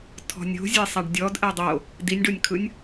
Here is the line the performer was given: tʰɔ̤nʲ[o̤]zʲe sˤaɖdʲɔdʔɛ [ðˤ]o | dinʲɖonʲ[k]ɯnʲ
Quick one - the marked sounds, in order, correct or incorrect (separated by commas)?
correct, incorrect, incorrect